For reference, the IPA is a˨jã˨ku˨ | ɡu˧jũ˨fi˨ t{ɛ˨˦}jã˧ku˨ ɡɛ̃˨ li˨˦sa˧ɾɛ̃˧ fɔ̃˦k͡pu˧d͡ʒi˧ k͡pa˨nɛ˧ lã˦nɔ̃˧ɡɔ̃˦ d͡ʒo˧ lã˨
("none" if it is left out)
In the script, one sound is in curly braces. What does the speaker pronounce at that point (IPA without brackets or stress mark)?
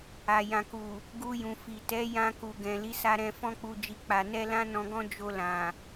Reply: ɛ˨˦